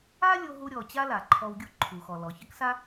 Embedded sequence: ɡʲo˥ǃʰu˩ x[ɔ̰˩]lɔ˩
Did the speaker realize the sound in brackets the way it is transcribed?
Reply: no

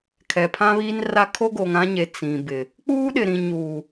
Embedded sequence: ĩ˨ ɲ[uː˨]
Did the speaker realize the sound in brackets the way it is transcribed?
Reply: yes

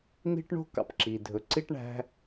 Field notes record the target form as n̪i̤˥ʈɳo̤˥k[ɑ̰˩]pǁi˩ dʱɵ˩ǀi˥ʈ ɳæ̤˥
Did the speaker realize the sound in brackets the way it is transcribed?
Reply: yes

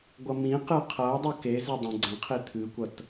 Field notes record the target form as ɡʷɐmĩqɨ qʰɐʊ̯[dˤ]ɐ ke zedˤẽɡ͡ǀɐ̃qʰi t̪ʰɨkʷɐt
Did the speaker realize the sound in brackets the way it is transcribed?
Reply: yes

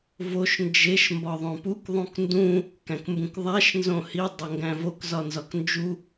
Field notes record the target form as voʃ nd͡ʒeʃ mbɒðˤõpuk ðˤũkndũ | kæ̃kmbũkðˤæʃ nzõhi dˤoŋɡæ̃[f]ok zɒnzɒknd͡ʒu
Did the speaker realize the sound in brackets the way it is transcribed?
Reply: no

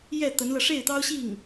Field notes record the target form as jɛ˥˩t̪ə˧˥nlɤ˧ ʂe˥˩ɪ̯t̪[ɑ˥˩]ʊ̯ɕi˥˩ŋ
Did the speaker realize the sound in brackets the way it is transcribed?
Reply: no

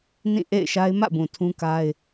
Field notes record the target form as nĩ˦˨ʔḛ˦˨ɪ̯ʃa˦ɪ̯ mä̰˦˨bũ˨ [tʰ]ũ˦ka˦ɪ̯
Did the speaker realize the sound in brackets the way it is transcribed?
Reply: yes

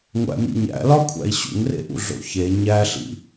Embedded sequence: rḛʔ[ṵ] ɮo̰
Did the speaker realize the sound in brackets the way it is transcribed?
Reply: yes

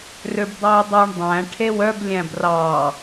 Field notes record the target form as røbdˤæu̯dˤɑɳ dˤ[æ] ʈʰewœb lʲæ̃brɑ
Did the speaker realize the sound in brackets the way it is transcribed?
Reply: no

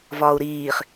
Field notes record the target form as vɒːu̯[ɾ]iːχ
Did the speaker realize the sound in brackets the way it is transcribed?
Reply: yes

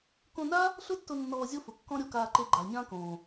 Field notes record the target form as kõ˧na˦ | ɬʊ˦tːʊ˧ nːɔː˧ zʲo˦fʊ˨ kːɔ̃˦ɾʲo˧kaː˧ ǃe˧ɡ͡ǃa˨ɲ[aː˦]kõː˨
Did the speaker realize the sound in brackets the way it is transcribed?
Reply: no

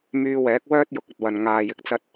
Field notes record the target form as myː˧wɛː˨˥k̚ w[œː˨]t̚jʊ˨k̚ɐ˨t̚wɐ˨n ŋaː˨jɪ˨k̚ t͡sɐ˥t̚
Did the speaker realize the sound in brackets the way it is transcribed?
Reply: no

